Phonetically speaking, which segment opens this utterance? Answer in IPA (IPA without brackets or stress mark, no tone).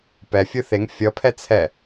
p